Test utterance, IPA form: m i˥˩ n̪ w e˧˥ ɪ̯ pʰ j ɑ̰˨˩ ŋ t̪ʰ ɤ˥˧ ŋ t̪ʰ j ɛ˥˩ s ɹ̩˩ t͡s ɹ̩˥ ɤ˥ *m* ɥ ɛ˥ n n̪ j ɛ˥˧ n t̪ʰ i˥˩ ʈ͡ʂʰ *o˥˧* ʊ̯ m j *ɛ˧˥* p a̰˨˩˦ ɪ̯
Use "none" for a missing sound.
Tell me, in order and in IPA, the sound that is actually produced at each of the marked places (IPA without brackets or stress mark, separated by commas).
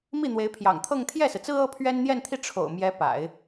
pʰ, o̰˨˩, ɛ˧˥